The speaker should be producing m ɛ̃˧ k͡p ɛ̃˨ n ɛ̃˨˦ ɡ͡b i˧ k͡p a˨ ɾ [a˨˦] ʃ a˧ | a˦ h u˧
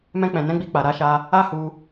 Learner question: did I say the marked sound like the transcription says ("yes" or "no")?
yes